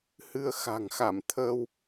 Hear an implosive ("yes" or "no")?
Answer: no